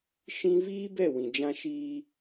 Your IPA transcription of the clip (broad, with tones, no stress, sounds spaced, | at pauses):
ʃ ĩ˦ v iː˦ b ɛ˦˨ w ĩ˨ d͡ʒ ã˦ ʃ iː˦